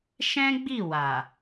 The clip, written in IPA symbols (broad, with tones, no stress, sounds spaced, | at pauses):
ʃ ɛ̃˦ ɡ͡b i˦˨ w a˨